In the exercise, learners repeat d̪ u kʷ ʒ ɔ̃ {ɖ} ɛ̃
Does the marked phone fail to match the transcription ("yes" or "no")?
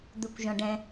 no